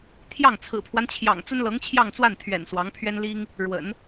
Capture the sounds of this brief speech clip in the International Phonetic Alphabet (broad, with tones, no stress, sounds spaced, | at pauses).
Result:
t̪ʰ j ɑ˥˩ ŋ t͡sʰ ɹ̩˨˩ pʰ w a˦ n t͡ɕʰ j ɑ̰˨˩ ŋ t͡s ə˥ n l ɤ˧˥ ŋ t͡ɕʰ j ɑ˥˧ ŋ t͡s w a˥˩ n t̪ʰ ɥ ɛ̰˨˩ n s w ɑ˧˥ ŋ pʰ ɥ ɛ˥ n l i˥ ŋ | ɻ w ə̰˨˩˦ n